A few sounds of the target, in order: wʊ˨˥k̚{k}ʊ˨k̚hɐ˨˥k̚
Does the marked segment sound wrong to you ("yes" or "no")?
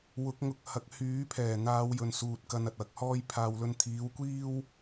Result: yes